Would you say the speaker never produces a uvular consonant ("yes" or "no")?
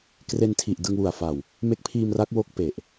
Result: yes